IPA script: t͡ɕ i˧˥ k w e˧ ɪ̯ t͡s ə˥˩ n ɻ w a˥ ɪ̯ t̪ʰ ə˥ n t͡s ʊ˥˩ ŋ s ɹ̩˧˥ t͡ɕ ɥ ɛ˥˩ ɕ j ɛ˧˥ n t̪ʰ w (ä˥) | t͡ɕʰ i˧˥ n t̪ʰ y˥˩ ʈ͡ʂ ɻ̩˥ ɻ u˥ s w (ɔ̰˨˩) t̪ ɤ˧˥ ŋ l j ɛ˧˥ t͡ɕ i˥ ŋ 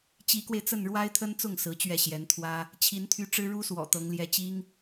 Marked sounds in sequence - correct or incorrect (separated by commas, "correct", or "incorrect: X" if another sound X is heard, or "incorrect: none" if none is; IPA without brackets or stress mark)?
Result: correct, correct